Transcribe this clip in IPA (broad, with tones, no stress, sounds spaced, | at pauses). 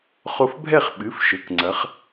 χ o˧ f bʱ ɛ˥˩ χ ɓ ɨ˩˧˩ f ʃ ɘ˩˧˩ k ŋ͡ǀ ɐ˩˧ χ